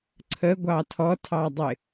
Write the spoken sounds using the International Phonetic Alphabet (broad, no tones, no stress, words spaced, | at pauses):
ǀʰə ɡʷɑtʰɔtʰɑdˤɪ